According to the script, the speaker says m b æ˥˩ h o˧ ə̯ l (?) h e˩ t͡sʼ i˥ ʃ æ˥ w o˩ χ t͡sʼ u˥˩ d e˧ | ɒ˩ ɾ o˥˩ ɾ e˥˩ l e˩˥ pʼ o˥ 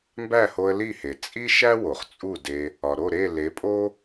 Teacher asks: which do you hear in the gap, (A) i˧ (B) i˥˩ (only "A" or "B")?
B